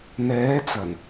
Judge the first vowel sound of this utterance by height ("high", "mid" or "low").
mid